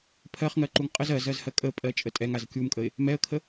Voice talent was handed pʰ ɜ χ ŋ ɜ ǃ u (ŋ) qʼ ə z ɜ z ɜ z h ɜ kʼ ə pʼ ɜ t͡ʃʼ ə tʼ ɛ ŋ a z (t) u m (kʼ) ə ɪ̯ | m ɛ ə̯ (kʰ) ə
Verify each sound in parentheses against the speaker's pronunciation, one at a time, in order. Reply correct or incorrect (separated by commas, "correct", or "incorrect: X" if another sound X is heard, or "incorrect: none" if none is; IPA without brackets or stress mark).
correct, incorrect: kʲ, correct, correct